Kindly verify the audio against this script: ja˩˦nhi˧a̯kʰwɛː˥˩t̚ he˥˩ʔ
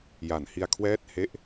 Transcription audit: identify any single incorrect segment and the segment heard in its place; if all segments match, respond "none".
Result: none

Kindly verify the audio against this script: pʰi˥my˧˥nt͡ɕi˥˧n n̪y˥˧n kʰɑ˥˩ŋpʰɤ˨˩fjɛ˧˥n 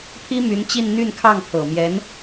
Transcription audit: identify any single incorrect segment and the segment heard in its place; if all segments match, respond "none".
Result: f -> m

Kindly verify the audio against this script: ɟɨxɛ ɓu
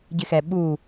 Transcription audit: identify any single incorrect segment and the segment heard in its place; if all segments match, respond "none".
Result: ɨ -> ɪ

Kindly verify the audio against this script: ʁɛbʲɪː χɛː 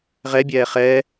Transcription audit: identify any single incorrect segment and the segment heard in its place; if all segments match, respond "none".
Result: ɪː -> ɛː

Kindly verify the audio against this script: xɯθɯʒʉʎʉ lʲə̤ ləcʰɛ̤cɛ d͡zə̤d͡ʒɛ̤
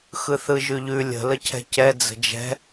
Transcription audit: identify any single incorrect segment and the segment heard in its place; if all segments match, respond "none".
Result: none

